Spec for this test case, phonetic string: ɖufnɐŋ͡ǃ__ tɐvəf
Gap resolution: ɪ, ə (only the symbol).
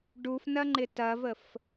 ɪ